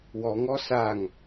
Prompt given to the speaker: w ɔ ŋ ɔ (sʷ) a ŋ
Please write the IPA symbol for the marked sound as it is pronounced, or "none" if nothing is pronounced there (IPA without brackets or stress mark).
s